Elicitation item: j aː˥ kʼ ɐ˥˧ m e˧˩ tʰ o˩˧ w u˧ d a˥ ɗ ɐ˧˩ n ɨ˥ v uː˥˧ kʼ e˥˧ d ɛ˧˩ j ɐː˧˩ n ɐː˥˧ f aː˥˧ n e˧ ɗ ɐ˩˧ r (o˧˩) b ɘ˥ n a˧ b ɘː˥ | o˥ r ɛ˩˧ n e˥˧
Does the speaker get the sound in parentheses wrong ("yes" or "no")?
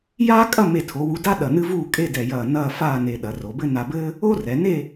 yes